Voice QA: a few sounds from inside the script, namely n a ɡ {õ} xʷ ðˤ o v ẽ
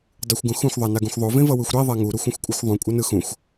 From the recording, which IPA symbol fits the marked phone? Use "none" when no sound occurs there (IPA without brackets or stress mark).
ũ